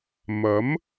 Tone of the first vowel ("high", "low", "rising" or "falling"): rising